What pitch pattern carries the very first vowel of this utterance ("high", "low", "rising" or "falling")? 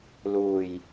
low